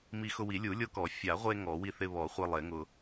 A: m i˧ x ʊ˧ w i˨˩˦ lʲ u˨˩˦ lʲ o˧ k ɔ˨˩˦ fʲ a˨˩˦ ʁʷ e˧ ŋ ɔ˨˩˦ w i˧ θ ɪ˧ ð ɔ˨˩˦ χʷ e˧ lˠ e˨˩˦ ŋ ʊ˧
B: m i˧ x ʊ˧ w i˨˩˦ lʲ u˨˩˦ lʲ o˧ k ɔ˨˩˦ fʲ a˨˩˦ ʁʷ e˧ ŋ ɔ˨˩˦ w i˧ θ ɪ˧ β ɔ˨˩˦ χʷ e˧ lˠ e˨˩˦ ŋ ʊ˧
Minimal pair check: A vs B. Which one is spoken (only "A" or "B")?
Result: B